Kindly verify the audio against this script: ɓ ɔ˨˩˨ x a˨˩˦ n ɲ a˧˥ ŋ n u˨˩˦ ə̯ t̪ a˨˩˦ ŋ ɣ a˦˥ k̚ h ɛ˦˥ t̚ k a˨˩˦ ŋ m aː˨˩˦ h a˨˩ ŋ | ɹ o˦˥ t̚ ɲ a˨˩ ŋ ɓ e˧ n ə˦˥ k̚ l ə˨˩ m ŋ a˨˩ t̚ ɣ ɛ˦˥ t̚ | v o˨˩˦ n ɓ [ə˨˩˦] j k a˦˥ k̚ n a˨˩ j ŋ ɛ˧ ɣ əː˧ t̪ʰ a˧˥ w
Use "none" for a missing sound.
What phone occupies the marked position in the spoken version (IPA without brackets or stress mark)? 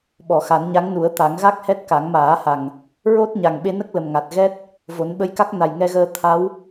ə˧˥